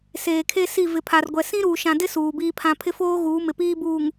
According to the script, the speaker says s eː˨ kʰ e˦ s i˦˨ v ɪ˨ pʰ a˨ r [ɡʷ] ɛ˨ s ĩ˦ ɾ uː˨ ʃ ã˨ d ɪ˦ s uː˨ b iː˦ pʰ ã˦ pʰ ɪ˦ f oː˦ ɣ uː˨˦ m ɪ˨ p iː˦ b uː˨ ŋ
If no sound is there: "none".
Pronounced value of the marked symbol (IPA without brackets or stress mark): ɡʷ